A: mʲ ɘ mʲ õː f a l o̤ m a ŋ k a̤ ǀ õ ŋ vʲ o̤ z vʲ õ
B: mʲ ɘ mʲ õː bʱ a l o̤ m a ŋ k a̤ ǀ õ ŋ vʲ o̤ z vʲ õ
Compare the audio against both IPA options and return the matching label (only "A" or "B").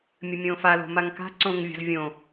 A